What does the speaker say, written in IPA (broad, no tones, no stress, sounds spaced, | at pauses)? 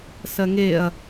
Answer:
s ɜ ŋ e ɐ̯